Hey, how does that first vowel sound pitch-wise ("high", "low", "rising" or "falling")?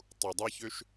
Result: low